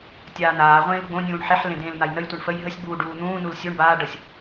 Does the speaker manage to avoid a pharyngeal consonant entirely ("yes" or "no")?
no